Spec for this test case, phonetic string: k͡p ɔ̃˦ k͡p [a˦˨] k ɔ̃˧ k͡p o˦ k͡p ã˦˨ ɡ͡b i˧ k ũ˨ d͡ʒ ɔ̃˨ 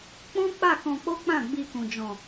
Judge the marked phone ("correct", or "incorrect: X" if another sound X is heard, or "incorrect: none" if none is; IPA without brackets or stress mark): correct